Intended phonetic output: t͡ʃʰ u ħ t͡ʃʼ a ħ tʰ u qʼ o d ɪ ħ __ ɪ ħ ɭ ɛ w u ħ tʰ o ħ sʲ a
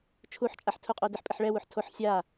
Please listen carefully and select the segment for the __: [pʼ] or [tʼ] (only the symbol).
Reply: pʼ